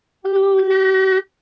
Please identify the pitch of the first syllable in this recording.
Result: high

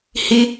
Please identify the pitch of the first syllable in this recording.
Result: high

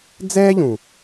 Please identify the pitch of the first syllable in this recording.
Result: high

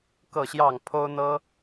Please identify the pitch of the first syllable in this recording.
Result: falling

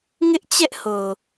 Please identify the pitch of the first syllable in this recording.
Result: high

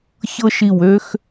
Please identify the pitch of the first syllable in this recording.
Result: high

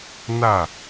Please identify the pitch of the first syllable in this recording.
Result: falling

